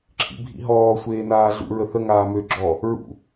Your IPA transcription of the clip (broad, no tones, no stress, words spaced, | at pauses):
ǁʰḭbʱḭɦɔː sʷeːnaːɮṵ ɹəθə ŋaːmø ɡ͡ǁɔ | ɹṵ